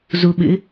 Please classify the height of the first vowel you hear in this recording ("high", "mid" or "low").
high